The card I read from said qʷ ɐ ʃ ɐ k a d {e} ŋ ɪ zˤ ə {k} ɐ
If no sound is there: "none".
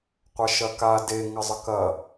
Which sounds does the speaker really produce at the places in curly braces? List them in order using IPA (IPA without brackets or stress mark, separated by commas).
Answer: e, k